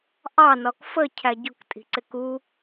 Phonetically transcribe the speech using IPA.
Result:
ʔɑ nɒkfə cʰæɟʊk tʼi̤ǀɪku

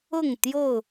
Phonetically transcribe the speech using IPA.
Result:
ʊ˥˨ŋt̪jo˥˨ʊ̯

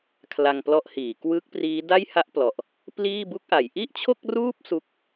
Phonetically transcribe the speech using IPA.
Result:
kʰla˧ŋplɔ˦˥ʔhiː˩˦ kwɯ˦˥k̚priː˦˥ da˥˩jha˥˩ʔplɔ˨˩ʔ | pliː˥˩bu˥˩k̚ʔa˩˦j ʔi˥˩ʔt͡ɕʰo˥˩k̚ruː˥˩p̚ su˥˩k̚

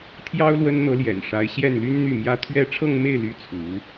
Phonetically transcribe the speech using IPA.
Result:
t̪ʰjɑ˥ʊ̯ lwə˥nn̪ɤ˧˥ljɛ̰˨˩nʂa˧˥ɪ̯ ɕjɛ˥˩nly˥n n̪y˥˩mjä˥ t̪ʰɥɛ˥˧ ʈ͡ʂʰɤ˥˧ŋme˥˩ɪ̯ly˧˥ t͡sʰu˧˥

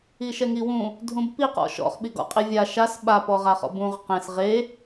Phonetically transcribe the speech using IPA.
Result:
iʃɛŋiwũ | dʱũbpiqɔ̰ ʃɔ̰χɓiɡɔ̰ qʼivʲa ʃas ɓa pɔʁaχɔ̰bũʁ qẽs ʁe

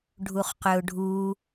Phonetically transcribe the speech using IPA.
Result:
ɖʱuχqøʊ̯ɖʱu

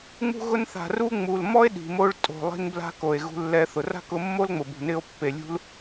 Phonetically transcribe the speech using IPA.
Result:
ŋ͡mṳ˧ɣʊ˧nθa̤˨ ru˦ ŋ͡mu˨l mɔ˦e̯ ɗi̤˨mo˧ɭ tʼo̤˨lˠi̤˧n bla̤˦ko˨e̯ ɣṳ˧lːɛ˧θʊ˨ ra̤˦kʊ˧mːo˦lŋ͡mʊ˨ bṳ˨nɪ˧o̯ pːe˨lʲṳ˦l

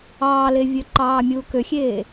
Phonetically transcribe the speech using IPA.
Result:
ɑːlevʲø ǃɑːmʲuːkøxʲeː

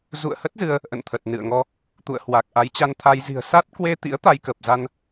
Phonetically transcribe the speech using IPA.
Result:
zṵ˧˨ə̯hə˦˥t̚ zɨ˧ə̯ | ʔə̰˧˨nt̪ʰə˨˩t̚nɨ̰˧˨ə̯ŋɔ˧ | t̪ṵ˧˨ə̯ hwa˨˩k̚ ʔa˨˦jt͡ɕa˧nt̪ʰa˧j zi̤˨˩ə̯sa˦˥t̚kwe˧t̪ḭ˧˥ə̯ t̪a˧jkə˨˩p̚za˧n

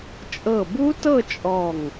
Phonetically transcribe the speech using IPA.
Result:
t͡ʃʼɤ˧˩bu˦˥tɤ˥˧ t͡ʃʼɔ˧˩ŋ

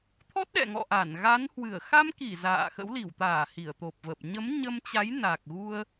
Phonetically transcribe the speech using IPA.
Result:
t̪ʰɔ˦˥t̚ɗɛ̰˧˨ŋɔ̰˧˨ʔa˧˩n ɣa˨˦nhwɨ˧˩ə̯ xa˧mki˧˩ za̰ː˧˨xə̰˧˥w li˧˩wt̪aː˧˩ hi˧˩ə̯t̪o˨˩p̚və˨˩p̚ ɲə˨˦mɲə˧mt͡ɕa˨˦j na˨˩k̚ɣu˧ə̯

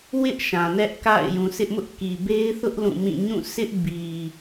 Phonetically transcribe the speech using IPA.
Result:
wɪ˦ʔ ʃã˨nɛ˦ʔka̰˦˨ɪ̯ jũ˨sɪ˦ʔmʊ˦ʔ ki˨be˦ɪ̯θʊ˦ʔ lũ˦˨mĩ˦˨ ɲũ˦˨sɪ˦ʔ bi˨

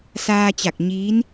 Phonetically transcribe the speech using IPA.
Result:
saː˧t͡ɕa˧˩k̚ ɲiː˧˥n

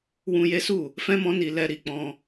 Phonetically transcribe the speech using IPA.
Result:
wũ˧je˦su˦˨ | fɛ̃˦mɔ̃˦ni˧ lɛ˧ɾi˨ k͡pɔ̃˧

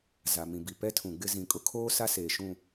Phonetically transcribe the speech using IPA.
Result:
za˨mĩ˨bi˨ pɛ˦tʰũ˨ɡ͡bɪ˦ zĩ˨kʼʊ˦kʰoː˦ sa˦seː˨ʃũ˦˨

